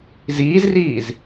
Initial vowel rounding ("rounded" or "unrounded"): unrounded